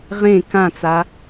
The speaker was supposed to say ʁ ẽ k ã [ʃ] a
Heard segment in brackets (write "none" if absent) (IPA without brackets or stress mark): t͡s